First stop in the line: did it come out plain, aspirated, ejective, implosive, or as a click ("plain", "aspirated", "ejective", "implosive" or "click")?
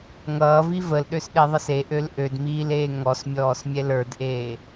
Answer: implosive